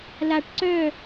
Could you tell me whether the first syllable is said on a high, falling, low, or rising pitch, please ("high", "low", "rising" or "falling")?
low